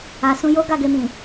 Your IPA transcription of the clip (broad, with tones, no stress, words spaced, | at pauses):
a˨sũ˧ jo˦ ɡa˦˨ɡe˧mĩ˨